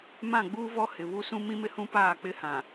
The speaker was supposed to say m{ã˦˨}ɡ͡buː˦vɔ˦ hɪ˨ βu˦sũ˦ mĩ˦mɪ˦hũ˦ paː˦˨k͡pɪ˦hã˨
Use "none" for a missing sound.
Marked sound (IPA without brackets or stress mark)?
ã˦˨